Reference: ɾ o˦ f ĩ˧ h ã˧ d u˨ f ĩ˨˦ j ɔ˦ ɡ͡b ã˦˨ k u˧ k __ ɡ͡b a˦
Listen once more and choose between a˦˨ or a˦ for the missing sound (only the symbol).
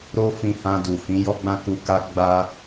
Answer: a˦